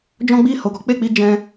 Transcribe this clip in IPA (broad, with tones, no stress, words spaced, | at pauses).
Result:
d͡ʒɔ̃˦ ɡ͡bi˦˨ ho˨ɡɔ˨˦k͡pe˦˨k͡pi˧ d͡ʒɛ̃˧